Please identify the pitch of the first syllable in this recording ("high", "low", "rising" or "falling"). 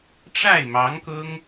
falling